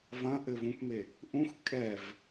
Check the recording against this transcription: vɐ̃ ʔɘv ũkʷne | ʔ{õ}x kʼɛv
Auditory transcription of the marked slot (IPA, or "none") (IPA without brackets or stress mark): ũ